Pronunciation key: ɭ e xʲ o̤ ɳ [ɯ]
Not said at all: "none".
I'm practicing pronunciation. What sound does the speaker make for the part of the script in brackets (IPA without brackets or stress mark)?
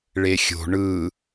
ɯ